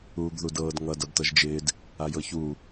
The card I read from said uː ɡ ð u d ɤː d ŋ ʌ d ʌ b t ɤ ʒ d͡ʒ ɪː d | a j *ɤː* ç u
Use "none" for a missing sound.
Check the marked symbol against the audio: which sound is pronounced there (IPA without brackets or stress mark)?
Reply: ɤ